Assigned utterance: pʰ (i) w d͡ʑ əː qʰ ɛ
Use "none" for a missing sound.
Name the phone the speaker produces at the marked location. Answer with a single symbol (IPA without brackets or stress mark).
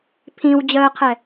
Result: ĩ